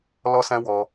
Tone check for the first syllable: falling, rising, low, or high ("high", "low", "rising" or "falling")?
high